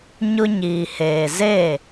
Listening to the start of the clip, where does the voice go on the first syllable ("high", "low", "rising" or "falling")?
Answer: high